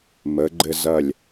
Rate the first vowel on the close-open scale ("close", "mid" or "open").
mid